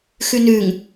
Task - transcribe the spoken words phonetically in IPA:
xʉnʉŋ

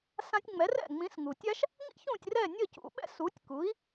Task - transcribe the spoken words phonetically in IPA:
sã˧tʲ ŋ͡mɛ˩˥rɛ̰˥˩ ŋ͡mĩ˩˥sŋu˩ tʲa˥ʃ | ŋḭ˥çũ˥˩tʲ rɛ˥˩nʲʌ˥˩cṵ˩˥ɓɛ̰˥ su˩˥tʲku˩˥i̯

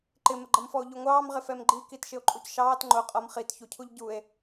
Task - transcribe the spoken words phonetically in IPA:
ǃɪməɡ͡ǃʌmfɔo̯ ʎuŋʷɑːmʁɪ fɛmɡ͡ǃi kitʃɪo̯ǃʼucʃɑːt ŋ͡ǃʊ qʼʌm χitçucʰuʎ ɟue̯

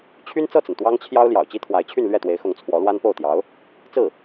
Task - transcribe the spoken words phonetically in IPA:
t͡ɕʰy˥nt͡sɤ˥˩t͡sə˩n t̪wɑ˥ŋt͡ɕʰjɑ˥ʊ̯ ljɑ̰˨˩ʊ̯t͡ɕi˥t̪ʰwa˧˥ɪ̯t͡ɕʰy˥˧n lɥɛ˥˩t̪we˧˥ɪ̯xʊ˧˥ŋ t͡sʰwɔ˧˥lwa˥npo˥˩ʊ̯t̪jɑ˧˥ʊ̯ | t͡sɹ̩˥˩

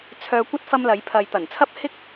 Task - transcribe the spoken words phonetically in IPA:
t͡sʰœː˧kʷɐ˥t̚ fɐ˥mlɐ˨˥jpʰɐ˧j t̪ɐ˨˩nt͡sʰɐ˥p̚hɪ˥k̚

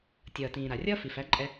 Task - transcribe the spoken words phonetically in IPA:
tʲʌː˩tĩː˩ ɾa˩rʲʌː˥ fi˩fæ˩˥ǃʼɛ˧

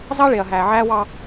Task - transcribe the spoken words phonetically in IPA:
zɑ˦ɭe˨ɐ̯ ɦæː˨ʕæː˦wɑ˦

